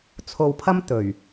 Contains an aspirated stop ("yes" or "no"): yes